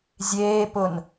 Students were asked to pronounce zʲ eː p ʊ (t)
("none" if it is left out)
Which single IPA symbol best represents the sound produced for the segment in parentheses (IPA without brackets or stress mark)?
n